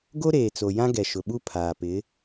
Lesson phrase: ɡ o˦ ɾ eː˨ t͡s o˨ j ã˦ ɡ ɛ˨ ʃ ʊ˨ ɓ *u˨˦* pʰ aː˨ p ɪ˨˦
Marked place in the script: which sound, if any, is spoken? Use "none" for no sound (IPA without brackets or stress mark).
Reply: u˦